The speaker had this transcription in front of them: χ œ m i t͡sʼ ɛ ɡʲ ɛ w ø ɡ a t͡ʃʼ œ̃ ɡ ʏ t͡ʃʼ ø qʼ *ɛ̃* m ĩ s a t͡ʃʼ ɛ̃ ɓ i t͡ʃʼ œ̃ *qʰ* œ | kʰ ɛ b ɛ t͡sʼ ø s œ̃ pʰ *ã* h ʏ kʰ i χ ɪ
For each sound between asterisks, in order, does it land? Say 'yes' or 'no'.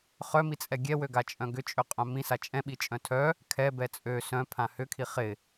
no, no, yes

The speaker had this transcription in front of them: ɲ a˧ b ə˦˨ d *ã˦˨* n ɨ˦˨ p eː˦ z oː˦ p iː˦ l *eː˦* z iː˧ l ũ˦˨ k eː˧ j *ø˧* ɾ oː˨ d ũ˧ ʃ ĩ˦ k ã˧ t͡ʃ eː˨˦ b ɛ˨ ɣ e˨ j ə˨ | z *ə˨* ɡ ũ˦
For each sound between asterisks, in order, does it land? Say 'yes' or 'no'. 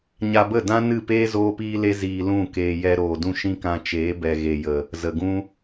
no, no, no, yes

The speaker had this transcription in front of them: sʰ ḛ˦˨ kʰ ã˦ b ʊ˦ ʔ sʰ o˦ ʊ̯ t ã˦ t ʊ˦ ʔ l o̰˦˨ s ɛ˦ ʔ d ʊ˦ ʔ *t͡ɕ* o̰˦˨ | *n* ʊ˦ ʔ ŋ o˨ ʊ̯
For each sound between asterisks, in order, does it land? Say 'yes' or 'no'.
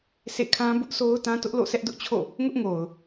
no, no

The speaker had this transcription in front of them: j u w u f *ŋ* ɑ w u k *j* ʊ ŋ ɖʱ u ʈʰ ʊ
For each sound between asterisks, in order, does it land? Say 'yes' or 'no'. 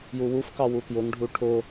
no, yes

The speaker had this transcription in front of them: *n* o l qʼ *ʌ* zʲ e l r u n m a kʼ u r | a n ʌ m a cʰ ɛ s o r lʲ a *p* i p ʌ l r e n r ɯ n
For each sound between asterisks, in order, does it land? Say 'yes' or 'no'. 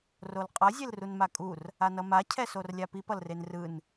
no, yes, yes

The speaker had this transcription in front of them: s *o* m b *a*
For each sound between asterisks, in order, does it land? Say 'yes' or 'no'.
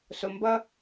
yes, no

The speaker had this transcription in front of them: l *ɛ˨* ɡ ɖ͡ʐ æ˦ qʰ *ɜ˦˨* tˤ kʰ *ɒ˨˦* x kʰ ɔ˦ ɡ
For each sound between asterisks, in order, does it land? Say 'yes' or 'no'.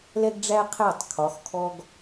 no, no, yes

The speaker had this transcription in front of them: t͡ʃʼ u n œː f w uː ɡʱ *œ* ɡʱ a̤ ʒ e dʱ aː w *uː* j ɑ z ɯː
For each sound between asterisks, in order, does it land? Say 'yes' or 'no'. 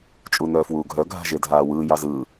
yes, no

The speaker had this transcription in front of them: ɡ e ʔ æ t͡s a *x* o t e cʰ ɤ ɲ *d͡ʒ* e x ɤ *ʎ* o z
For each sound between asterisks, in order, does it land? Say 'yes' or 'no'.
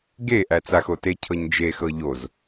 yes, yes, yes

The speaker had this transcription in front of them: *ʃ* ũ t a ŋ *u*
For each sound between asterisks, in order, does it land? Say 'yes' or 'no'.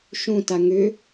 yes, no

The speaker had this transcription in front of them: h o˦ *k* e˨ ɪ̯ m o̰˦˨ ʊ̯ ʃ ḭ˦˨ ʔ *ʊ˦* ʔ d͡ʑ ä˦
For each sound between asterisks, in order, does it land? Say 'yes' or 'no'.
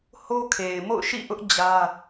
no, yes

